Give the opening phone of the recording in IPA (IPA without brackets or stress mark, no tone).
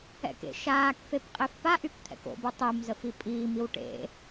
ɛ̰